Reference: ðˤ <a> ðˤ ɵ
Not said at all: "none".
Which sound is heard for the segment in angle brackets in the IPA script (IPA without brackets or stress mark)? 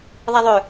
a